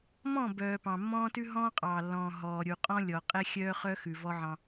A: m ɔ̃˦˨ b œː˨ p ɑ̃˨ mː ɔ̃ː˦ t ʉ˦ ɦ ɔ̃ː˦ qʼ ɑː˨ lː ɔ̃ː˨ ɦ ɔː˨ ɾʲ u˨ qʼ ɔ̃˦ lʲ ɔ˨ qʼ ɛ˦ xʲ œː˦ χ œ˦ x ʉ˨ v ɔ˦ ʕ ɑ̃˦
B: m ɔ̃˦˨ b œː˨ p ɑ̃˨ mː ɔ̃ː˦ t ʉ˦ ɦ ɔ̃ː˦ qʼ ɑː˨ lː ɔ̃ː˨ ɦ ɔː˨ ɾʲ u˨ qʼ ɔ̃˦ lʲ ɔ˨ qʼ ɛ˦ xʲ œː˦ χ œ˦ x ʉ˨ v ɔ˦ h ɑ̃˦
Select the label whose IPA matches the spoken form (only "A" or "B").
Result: A